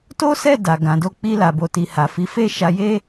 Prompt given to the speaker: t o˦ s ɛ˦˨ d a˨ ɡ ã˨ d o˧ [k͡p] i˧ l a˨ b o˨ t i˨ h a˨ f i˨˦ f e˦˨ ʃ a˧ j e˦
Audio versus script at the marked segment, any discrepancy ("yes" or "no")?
no